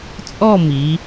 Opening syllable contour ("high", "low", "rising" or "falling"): falling